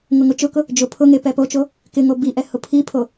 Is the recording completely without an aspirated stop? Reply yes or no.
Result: no